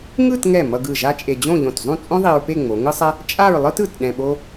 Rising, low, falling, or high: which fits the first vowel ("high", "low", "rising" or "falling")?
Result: falling